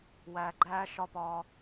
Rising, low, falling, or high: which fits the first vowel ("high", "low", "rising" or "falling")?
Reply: low